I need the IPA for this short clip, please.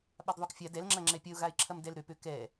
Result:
ɓ a d ðˤ o k fʲ a d ɛ l ŋ͡ǁ ɐ ŋ͡ǁ ɛ pʲ ɐ ʊ̯ ɣ a ɪ̯ ǁʰ ɐ m d ɛ l ɾ ø p ø k ɛ

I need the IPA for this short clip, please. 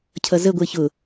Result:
cʰ ʌ z ə ɡʷ ɪː ç ʊ

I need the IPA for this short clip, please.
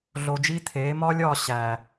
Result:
ɮ o˧ d͡ʒ i˦ t̪ʰ eː˨˦ m ɒː˦ lʲ ɒː˦˨ ɕ æː˨

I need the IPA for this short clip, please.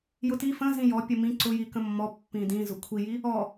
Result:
j ʊ t i f ə̃ z ĩ j ɔ pʲ ə m ĩ ǀ ʊ j i k ə̃ mː ɔ pː ĩ d ĩ z ʊ kʷʰ i j i | ɔ

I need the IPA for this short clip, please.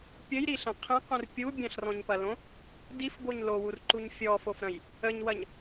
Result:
pʲ ə j ɾ i ɬ ɐ̃ qʰ ẽ q ũ r pʲ u bʲ ɐ̃ ɬ r ɔ̃ ɲ p ɐ l õ | d i f b o ɲ l o w u r ǃ u ɲ fʲ ɔ f o f ɾ ɐ̃ j | ə ɲ w ɐ ɲ

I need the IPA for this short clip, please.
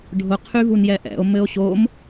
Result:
ɖʱ ʊ qʰ y v u n j ɛ ʔ ɛ̰ o̯ m ɘ o̯ ɕ o m

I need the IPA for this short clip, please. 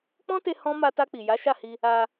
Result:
k͡p ɔ̃˦ t e˧ h ɔ̃˦ m a˧ t a˧ k͡p i˨ j a˨˦ ʃ a˦˨ h i˧ | a˧

